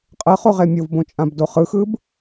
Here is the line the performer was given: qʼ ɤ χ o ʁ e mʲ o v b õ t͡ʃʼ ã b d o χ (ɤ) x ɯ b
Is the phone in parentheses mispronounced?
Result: yes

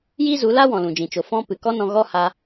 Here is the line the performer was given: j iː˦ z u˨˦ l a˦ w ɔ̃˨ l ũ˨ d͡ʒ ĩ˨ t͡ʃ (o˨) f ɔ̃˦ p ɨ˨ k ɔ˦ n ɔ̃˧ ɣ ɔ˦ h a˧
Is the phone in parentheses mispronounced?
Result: no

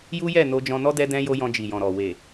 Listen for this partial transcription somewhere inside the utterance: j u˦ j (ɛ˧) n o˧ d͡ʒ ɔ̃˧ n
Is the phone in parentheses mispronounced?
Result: yes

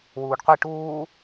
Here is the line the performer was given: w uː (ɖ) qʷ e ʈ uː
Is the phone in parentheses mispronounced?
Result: no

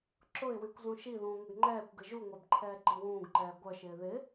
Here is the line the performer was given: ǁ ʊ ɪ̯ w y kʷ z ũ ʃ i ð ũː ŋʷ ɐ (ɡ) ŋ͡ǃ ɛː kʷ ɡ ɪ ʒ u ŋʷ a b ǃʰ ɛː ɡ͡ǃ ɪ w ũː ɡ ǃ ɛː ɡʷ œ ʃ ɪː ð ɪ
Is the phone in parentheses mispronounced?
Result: no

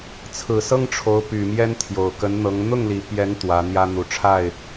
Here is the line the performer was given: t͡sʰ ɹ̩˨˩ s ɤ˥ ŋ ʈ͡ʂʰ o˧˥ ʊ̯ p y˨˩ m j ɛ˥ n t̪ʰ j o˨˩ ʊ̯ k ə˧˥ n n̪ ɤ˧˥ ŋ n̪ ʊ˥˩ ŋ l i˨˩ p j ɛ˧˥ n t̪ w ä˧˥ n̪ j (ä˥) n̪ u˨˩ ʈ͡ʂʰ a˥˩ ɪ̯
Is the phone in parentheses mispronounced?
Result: no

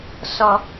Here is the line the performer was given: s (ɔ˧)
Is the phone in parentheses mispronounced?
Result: no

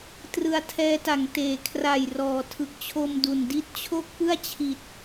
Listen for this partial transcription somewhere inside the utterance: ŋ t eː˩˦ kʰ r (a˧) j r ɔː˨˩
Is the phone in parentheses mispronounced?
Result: yes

